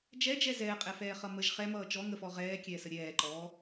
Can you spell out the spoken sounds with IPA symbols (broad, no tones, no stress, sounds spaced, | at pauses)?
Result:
d͡ʒ ɛ d͡ʒ ɛ z ɛː qʼ ɛ f ɛː χ ʌ m ə ʒ χ ɛ m ʌː t͡ʃ ɔ ŋ ə f ɔ ʁ ɛː kʲ ɛː s ə ɾʲ ɛː ǃ ɔː